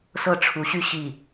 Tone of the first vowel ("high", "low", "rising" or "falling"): falling